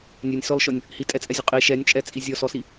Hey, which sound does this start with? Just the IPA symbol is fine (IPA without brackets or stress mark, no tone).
nʲ